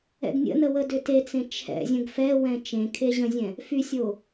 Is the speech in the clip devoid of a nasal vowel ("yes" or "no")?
no